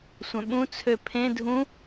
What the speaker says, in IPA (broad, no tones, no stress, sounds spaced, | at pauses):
sʷ œ̃ ɓ ũ t͡sʰ ø pʰ ẽ dʱ ũ